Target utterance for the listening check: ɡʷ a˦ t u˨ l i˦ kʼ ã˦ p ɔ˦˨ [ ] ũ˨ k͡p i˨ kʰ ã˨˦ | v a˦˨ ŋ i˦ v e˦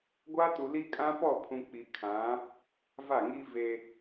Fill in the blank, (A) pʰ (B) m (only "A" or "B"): A